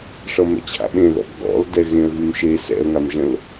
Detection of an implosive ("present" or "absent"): present